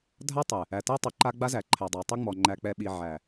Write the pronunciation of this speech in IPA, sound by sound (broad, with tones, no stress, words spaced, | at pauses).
dʱa˦tˤɨ˨ | æ˨tɛ˦tˤɨ˨ǃa˦ ɡ͡ba˦zæ˨ǃʰæ˨dˤa˨ tˤi˦ŋ͡mɔ˨ ŋ͡ǃæ˨k͡pɛ˨ɓi˨ ʕæ˨